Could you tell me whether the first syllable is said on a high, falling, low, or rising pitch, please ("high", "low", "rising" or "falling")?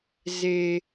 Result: low